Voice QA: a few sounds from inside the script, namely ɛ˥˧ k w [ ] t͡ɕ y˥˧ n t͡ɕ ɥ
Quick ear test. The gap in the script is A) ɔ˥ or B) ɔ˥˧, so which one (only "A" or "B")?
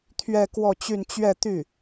B